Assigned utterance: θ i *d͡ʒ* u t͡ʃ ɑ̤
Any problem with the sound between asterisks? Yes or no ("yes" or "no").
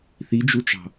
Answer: no